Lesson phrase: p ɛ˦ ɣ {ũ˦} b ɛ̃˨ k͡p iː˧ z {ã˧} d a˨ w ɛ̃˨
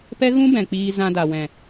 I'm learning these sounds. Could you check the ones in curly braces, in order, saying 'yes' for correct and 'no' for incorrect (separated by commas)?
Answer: yes, yes